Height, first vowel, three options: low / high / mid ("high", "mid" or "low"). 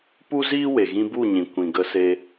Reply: high